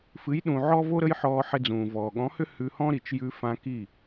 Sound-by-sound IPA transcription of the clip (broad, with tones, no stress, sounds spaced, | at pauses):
f ɨ˨˦ j ɗ ũ˨ ʕ ɔ˦ v o˦ ɾ ə˦ j ħ ɔː˧ ħ ɪ˧ d͡z ũː˨ v ɔː˨ ɠ ɔ̃˨˦ h ʏ˦ h ʉ˧ h ɔ̃˦ ɾ i˨ t͡ʃ j ʉ˧ f ã˧ k i˦˨